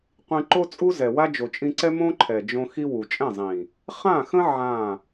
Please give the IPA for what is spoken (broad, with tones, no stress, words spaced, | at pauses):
qʷĩ˧ǃo˦t͡sʼu˦ zɛ˨wa˦ d͡ʒo˨t͡ʃʼĩ˧ǀɛ˦ mõ˦ǃʰɛ˨d͡ʒõ˧ xi˦wu˨ t͡ʃʼɛ̃˦˨zˤĩ˨ | χã˦˨xə̃˦ ʕã˦˨